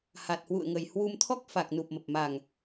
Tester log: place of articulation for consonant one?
glottal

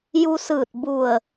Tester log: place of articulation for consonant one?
palatal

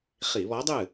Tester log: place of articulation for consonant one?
uvular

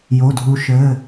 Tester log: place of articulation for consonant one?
palatal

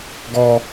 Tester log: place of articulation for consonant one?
velar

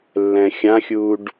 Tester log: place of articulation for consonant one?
alveolar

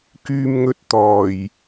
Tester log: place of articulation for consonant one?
velar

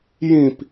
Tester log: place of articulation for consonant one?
palatal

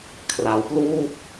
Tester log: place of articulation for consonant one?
velar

